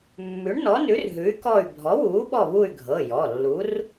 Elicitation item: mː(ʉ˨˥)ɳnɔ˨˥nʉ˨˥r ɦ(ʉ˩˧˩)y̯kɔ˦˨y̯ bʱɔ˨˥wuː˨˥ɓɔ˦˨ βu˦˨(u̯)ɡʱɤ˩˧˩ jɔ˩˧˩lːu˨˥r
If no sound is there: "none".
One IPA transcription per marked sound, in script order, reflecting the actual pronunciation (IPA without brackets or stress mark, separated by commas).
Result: ʉ˨˥, ʉ˨˥, y̯